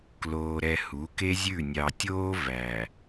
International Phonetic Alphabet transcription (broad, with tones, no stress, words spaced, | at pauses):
kloː˨ɾɛ˨ hu˨˦ke˦zʲʉ˦˨ nʲɑ˨tʲoː˦ væ˨